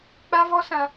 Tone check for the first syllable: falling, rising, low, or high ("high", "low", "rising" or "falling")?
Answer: high